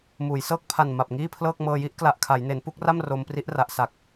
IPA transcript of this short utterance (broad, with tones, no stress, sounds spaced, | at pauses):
m uː˩˦ j s ɤː˥˩ k̚ pʰ a˨˩ n m a˨˩ p̚ ŋ iː˥˩ pʰ l ɤː˥˩ k̚ m ɤː˧ j i˦˥ ʔ k l a˨˩ ʔ kʰ a˩˦ j n e˩˦ n p u˥˩ k̚ r a˥˩ m r o˧ m p r i˦˥ ʔ r a˨˩ ʔ s a˨˩ k̚